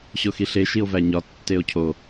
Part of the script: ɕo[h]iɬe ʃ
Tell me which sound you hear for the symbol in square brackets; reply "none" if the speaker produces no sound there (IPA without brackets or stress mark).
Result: x